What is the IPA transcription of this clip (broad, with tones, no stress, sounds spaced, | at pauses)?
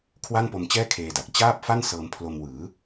kʰ w a˥˩ n p o˧ m t͡ɕ ɛː˥˩ kʰ eː˧ d a˨˩ k̚ t͡ɕ aː˥˩ p̚ f a˥˩ n s ɤː˧ m pʰ l o˧ m w ɯː˩˦